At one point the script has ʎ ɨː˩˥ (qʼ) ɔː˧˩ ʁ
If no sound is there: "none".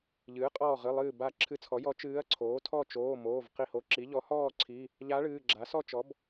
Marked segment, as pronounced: qʼ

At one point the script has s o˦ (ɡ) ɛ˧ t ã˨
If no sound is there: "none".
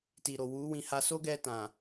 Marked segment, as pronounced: ɡ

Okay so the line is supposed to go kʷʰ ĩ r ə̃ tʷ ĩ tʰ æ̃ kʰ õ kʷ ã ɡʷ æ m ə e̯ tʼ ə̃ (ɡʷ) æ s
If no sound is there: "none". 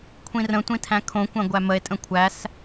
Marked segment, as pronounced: kʷʰ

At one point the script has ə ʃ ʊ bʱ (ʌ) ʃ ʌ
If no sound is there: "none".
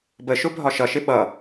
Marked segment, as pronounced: ɒ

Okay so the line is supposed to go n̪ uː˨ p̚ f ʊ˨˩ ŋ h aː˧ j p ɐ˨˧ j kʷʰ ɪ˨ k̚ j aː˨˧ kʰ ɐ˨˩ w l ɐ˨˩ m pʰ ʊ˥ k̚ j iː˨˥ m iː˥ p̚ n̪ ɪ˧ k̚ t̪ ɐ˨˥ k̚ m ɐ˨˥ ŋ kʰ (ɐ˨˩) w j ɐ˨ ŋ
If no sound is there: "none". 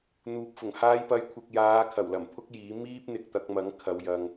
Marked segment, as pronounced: ɐ˨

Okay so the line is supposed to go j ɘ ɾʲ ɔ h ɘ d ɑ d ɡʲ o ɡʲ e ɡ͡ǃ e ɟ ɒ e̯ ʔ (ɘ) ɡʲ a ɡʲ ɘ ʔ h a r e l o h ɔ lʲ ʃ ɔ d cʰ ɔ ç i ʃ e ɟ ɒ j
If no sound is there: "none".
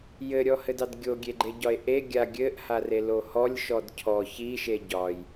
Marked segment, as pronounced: e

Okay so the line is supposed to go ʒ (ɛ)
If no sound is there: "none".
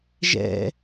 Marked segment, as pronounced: ɛ̰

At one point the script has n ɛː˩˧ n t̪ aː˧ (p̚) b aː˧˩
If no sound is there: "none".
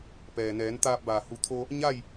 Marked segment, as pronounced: p̚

